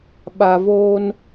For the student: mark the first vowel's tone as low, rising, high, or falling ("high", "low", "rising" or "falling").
low